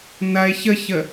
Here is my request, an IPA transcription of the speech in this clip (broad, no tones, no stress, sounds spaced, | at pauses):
n ɐ e̯ ç ə ç ə